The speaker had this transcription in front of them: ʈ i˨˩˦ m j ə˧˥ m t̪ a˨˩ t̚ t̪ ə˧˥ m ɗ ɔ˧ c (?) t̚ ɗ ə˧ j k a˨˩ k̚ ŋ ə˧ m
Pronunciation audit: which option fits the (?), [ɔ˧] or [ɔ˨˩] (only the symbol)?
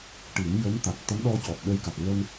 ɔ˨˩